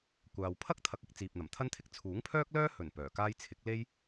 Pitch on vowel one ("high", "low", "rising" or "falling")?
low